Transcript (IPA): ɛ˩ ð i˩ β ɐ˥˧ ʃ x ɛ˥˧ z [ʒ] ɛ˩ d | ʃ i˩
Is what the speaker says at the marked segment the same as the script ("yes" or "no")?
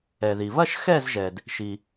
yes